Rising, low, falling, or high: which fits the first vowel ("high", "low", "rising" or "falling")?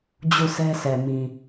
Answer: falling